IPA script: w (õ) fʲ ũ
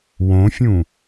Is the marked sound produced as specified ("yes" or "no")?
yes